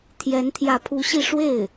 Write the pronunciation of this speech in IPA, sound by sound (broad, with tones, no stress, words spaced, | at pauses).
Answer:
t̪ʰjɛ˧˥nt̪ʰjä˧˥pʰu˧˥ɕi˥˧ ʂwe˥˩ɪ̯